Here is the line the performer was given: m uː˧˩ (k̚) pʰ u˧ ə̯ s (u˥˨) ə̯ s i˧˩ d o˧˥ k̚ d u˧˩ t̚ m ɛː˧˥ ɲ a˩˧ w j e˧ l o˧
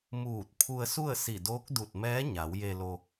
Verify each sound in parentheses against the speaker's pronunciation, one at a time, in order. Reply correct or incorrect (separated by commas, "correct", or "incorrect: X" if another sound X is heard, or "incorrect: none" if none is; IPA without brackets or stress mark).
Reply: incorrect: t̚, correct